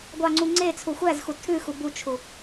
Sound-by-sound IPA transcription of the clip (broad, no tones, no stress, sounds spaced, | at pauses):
ɡʷ ɑ ŋ͡ǀ u ŋ͡ǀ e t͡sʰ u xʷ æ z x u tʰ ʉ x u b u t͡ʃʰ u